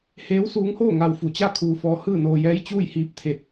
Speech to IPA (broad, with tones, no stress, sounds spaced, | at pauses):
h eː˧˥ w s uː˧˥ ŋ h oː˥˨ ŋ a˧ w f u˧˩ t͡ɕ a˥˨ kʰ uː˧ f ɔː˧ h ɯː˥˨ n oː˧ j ɛː˧˥ j t͡ɕ uː˥˨ j h iː˧˥ p̚ t̪ʰ e˧ t̚